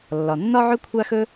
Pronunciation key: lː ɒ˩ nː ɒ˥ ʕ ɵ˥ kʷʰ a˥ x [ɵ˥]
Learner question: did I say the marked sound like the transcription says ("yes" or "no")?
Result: yes